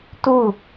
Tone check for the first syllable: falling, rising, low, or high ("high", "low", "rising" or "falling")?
falling